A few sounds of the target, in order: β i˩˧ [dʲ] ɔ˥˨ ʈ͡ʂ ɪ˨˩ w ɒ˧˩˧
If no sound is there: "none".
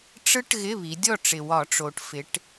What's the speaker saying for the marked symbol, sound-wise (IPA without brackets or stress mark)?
dʲ